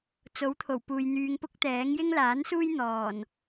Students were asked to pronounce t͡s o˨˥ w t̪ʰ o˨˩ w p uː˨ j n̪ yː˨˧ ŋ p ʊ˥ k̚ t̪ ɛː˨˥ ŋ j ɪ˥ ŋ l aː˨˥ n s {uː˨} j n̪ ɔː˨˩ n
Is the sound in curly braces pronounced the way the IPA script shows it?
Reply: no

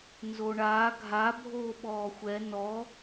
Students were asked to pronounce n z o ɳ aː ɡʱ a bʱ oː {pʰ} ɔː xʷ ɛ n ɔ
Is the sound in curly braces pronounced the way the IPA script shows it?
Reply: no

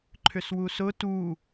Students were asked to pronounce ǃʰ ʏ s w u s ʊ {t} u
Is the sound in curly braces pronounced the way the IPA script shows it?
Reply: yes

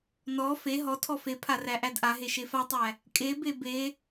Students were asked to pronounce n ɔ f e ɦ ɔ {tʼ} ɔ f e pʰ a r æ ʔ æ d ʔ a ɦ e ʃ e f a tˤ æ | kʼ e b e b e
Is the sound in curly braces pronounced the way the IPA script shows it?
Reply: no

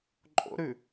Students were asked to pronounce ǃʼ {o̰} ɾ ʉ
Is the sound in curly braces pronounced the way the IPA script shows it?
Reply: yes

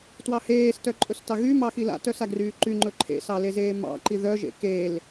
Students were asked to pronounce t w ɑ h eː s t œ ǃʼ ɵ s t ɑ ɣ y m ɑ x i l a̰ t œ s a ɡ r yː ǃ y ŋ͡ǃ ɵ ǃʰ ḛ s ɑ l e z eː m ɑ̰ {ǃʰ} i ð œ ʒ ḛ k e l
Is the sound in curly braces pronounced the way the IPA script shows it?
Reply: no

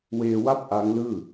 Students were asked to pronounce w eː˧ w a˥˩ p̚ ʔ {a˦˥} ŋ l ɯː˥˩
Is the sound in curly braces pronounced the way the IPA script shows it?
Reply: yes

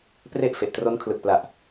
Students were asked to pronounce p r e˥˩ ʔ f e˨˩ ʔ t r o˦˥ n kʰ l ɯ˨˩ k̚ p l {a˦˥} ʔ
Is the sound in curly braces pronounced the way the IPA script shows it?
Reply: no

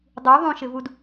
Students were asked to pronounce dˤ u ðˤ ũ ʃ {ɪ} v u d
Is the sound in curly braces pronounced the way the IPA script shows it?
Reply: yes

